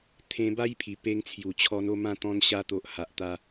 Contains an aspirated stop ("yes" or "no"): yes